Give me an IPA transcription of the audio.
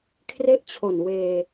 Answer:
kʰ r e˥˩ ʔ t͡ɕʰ o˨˩ n w eː˧

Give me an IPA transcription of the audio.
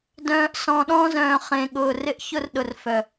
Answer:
d œ̃ː˨ ʔ s ɔ̃˨ ɗ ɔ̃˦ z œ̃ː˨ χ ẽ˨ ɠ ʊː˨ r ɪ˦ ʔ ç ʊ˦ r ɗ ʊ˨ r f œ˨

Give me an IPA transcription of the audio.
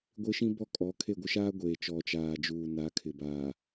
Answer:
ɡʷ ɪ˦ ʃ ĩ˦ b ɔ˦ kʼ ɔ˨˦ kʰ e˦˨ ɡʷ ɪ˦ ʃ aː˦ ɡʷ eː˨ t͡ʃ ɔ˨ t͡ʃ aː˨ d͡ʒ uː˨ n a˨˦ kʰ ɪ˨ b aː˨

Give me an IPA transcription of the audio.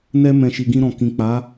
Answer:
n ɛ˧ m ɛ̃˨ ʃ i˨ ɡ ĩ˧ ɾ ɔ̃˨ k ĩ˨ k͡p a˨˦

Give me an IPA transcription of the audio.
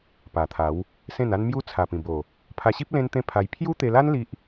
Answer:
p a˨˩ t̪ʰ a˨˦ w | s ẽ˥˧ n a˦ n m j u˦ t͡sʰ a˨˩ p ĩ˨˩ b o˨˩ | pʰ a˧ ɕ i˦ p̚ l ẽ˦ n t̪ ẽ˦ pʰ a˧ j pʰ j u˦ t̪ e˧ l a˦ n l i˦ ʔ

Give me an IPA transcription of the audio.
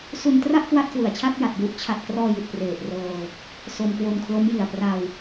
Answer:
s u˧ n t r a˥˩ ʔ k w a˥˩ t̚ k w ɯ˨˩ a̯ t͡ɕʰ a˥˩ t̚ j a˨˩ t̚ j u˦˥ ʔ t͡ɕʰ a˨˩ t̚ k r ɔː˧ j i˨˩ t̚ p r eː˨˩ t̚ r ɤː˧ | s o˧ m k w o˧ n kʰ l o˦˥ m j i˨˩ a̯ p r a˧ w

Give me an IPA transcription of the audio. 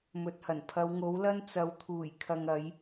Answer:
m ɵ˨ t̚ h ɐ˨˩ n pʰ ɐ˨˧ w ŋ o˨˥ w l ɐ˥ n t͡s ɐ˨˧ w t̪ʰ uː˨˩ j kʰ ɐ˨ ŋ ɐ˨˧ j

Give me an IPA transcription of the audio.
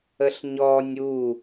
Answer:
ə ɬ ɲ ɔ nʲ u

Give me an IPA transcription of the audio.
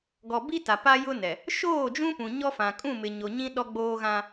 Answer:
ɡ ɔ˨ b i˦ t a˨ p a˦ j ʊ˦ n ɛ˨ | ʃ oː˦˨ d͡ʒ ũ˦ p ũ˨ ɲ ɔ˦ f ã˨ kʼ ũ˦˨ m ɪ˨ ɲ o˨ ɲ ĩ˦ ɗ ɔ˦ ɡ͡b oː˦ ɣ ã˦

